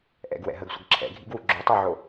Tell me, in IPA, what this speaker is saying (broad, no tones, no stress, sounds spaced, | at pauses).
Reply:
ʔ ɛ̰ ɡ w ɛ̰ ɦ ə ɡ sʷ ə ɡ ǁʰ ɛ̰ ɡʱ ḭ ɡ w u ɡ͡ǁ o tˤ u ʕ o